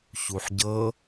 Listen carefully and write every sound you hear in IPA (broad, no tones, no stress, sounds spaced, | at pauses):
ç u ħ ɟ ɤ